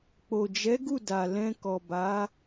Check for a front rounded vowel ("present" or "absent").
absent